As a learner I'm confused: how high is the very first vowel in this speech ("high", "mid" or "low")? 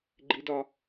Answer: high